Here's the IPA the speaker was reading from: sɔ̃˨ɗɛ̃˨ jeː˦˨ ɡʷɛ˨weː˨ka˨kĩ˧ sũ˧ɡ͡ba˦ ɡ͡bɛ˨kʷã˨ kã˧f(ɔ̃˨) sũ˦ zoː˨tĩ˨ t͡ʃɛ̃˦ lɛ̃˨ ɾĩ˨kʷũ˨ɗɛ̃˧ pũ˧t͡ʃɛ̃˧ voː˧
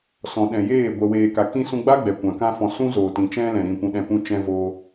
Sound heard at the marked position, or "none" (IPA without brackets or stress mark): ɔ̃˨